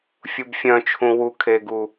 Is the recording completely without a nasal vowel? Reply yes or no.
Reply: no